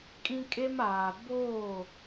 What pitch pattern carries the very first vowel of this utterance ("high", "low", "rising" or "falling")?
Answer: high